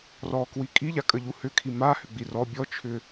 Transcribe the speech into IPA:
r ɔ k w i kʼ i ʎ a kʼ ə ʎ u h ʏ kʰ i m a h ʏ ɡ͡b i r ɔ bʲ ɔ t͡ʃʰ ʏ

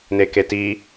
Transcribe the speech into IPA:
n e k e t i

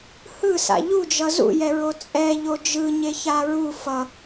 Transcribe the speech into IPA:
h ɯ s a̰ ʎ u d͡ʒ ʌ z ṵ j ɛ ɹ o t͡sʼ ɛ ʎ o d͡ʒ ɯ ɲ e ç a ɹ u f ʌ

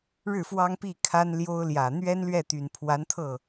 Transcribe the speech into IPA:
ɻ ɻ̩˥˩ f w ɑ˥ ŋ p i˥˩ kʰ a˥ n l j o˥ ʊ̯ l j ä˨˩ n̪ ɥ ɛ˥ n l ɥ ɛ˥˩ t̪ y˨˩ n pʰ w a˧˥ n t̪ʰ ɤ˥˩

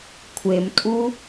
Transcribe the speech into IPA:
kʷʰ e m tʼ u

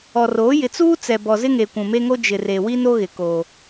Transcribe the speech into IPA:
ɔ˨ r oː˨˦ j ɪ˨ t͡s uː˦ t͡s ɛ˨ b ɔ˨ z ɪ˦ ŋ e˨ kʷ ũ˨ m e˦ ŋ o˦ d͡ʒ ɪ˨ r e˨ w i˦ n o˦ ɣ ɪ˨ k oː˦

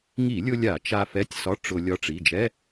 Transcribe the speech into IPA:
ŋ i˧˩˧ lʲ ʊ˧ lʲ a˧˩˧ t͡ʃ a˧ f ɛ˧˥˧ tʲ s ɒ˧˥˧ ʈ͡ʂ ʊ˧ lʲ ɒ˧ ʈ͡ʂ i˩˧˩ d͡ʒ ɛ˧˥˧

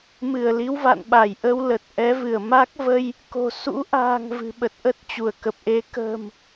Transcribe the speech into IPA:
m ɨ˧˩ ə̯ l i˨˦ w v a̰˧˨ n ɓ a˧˩ j ʔ ə˧ w l ə˨˩ t̚ ʔ ɛ˨˦ v ɨ˧˩ ə̯ m a˦˥ k̚ v ə˧ j | k o̤˨˩ s ṵ˧˥ ʔ a̤ː˨˩ ŋ v ɨ̤˨˩ ɓ ə˨˩ t̚ ʔ ə˦˥ t̚ t͡ɕ u˧˩ ə̯ k ə˨˩ p̚ ʔ e˨˦ k ə̤ː˨˩ m

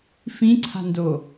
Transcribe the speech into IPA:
f ĩ ǀʰ a̤ n d o

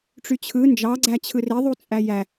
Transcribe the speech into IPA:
ʈ͡ʂ y t͡ɕʰ ɯ n d͡ʒ ɑ ɡ͡ǀ æ t͡ɕʰ ɯ r e ðˤ u t͡sʼ æ j æ

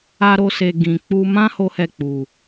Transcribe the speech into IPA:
a˦ ɾ o˦ s e˧ ɡ ĩ˨ k͡p u˧ m ã˦ h o˦ h ɛ˦˨ k͡p u˨

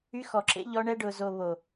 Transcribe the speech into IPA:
y˧ x ɔ˨ ǁ ḛ˧ ʎ ɔ˧ ɳ ɛ˧ ɖ ʊ˨ z o˨ β o˨

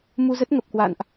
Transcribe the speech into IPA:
m u˧ z ə˦˥ t̚ ŋ ə˨˩ p̚ k w a̰˧˨ n ʔ

